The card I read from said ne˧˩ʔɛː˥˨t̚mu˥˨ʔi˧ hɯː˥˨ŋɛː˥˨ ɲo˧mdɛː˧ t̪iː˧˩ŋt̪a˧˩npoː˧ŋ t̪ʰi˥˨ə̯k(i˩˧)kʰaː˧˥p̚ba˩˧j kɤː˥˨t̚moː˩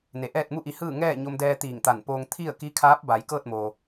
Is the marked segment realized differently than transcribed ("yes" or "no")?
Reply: yes